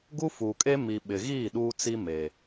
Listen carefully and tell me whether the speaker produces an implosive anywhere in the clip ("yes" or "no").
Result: yes